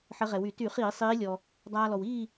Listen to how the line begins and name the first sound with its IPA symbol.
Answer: ħ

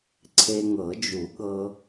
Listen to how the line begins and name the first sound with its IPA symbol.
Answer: ǀʰ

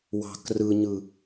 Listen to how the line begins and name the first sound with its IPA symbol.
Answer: w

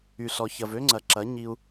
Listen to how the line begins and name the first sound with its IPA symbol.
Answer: y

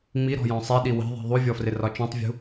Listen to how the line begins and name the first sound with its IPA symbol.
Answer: ŋ͡m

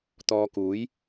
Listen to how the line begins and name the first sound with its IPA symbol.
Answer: t̪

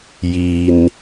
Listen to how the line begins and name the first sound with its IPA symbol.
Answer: j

